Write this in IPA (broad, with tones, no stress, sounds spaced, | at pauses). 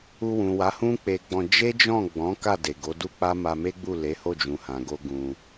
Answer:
u˧ w ũ˨ w a˨˦ h ũ˦ k͡p e˧ ɡ͡b ɔ̃˧ d͡ʒ e˦ d͡ʒ ɔ̃˦˨ ɡ͡b ɔ̃˨˦ k a˦˨ d e˨ ɡ o˨˦ d u˦ k͡p a˦ m a˧ m e˦ ɡ͡b u˦˨ l e˨˦ h o˦˨ d͡ʒ ũ˨ h ã˨ ɡ o˧ ɡ ũ˧